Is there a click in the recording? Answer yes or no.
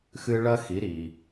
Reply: no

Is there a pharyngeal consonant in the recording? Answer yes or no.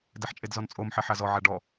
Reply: yes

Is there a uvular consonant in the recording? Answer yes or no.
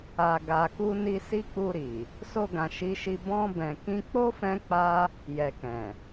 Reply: no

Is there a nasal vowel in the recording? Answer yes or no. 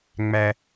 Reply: no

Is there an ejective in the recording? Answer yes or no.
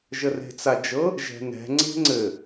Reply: no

